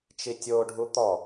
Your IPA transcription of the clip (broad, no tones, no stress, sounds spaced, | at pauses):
t͡ʃ i tʲ o ɖʱ u t̪ ɔ